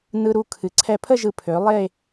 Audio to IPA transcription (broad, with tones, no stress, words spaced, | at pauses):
nɯ˧ɾu˧ kʰɨ˩˧ǀʰɛ˧˩pʰə˥˧ʒɯ˧˩ pʰø˩˧lˠe˥˧